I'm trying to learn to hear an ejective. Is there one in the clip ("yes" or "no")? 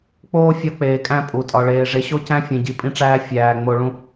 yes